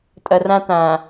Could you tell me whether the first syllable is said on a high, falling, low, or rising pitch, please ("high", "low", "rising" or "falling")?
low